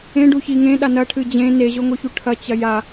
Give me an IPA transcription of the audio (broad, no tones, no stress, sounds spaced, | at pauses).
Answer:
ẽ ɖ u ç i ŋ ẽ ɗ a n ɐ ʈʰ ɨ d͡ʑ ẽ n e ʑ o ŋ o ç u ʈʰ ɐ t͡ɕ ɐ j a